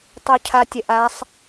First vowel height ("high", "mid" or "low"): high